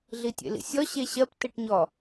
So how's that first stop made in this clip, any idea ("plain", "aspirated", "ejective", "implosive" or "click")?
plain